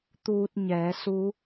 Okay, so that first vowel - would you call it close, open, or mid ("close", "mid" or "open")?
close